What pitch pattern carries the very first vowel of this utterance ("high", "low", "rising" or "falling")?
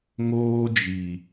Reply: high